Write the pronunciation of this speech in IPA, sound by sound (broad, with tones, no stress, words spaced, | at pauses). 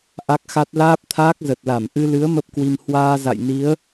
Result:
ʔa˦˥k̚xa˦˥t̚ laː˦˥p̚t̪ʰaː˦˥k̚zə˨˩t̚la˧˩m ʔɨ˧lɨ˨˦ə̯ mə˦˥p̚kwi˧m hwaː˧ za̰˧˨j ni˨˦ə̯